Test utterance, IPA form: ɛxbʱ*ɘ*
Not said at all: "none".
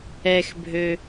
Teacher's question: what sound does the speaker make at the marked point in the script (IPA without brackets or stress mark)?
ø